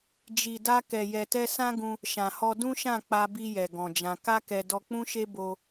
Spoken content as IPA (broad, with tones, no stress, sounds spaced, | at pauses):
d͡ʒ i˨ d a˧ k ɛ˨ j ɛ˨ t ɛ˧ s ã˦ ɡ ũ˧ | ʃ ã˨ h ɔ˧ d ũ˦ ʃ ã˦˨ k͡p a˧ b i˧ j ɛ˨ ɡ ɔ̃˨ d͡ʒ ã˧ k a˦ k ɛ˧ d ɔ˧ k͡p ũ˦ ʃ e˦ b o˧